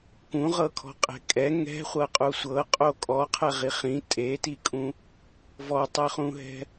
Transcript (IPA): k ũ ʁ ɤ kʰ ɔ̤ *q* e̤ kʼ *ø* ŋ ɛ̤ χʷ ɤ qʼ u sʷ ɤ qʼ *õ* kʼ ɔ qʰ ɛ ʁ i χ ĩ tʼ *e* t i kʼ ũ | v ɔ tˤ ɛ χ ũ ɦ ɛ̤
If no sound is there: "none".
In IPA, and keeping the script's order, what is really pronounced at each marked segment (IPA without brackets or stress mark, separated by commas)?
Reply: qʼ, ɛ, o, e